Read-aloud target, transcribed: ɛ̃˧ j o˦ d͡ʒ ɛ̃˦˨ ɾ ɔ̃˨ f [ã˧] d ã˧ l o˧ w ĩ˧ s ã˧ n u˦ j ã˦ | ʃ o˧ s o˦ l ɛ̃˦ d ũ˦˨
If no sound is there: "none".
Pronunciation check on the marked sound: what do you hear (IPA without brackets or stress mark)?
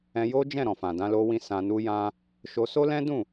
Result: ã˨